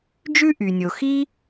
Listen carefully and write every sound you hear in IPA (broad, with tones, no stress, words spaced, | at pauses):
d͡ʒʉ˥ʔy˩nʲo˩xi˥